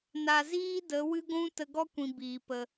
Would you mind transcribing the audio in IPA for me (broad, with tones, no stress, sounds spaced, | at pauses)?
n a˨ z iː˦ d ə˨˦ w ɨ˦ ɡʷ ũ˦ t ə˧ ɡ ɔ˦ kʷ ĩ˨ b iː˨ p ə˧